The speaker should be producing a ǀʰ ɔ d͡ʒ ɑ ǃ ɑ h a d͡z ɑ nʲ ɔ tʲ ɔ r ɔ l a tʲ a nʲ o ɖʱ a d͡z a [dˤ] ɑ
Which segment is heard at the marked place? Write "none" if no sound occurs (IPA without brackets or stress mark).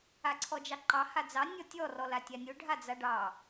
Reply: ɖ